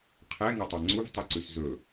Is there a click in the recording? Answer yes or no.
yes